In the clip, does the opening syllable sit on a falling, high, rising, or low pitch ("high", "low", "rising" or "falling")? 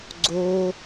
high